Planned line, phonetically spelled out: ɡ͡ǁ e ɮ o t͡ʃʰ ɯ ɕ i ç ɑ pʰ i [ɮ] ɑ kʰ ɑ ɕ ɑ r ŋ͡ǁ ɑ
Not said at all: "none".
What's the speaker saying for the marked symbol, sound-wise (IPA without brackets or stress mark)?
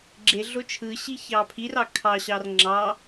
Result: r